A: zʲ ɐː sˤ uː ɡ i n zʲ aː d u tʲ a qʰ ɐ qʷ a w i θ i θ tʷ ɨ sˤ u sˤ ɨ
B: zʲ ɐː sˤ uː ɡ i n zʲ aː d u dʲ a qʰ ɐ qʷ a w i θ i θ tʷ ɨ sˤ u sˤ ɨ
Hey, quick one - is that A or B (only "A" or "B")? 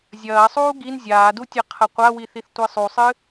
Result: A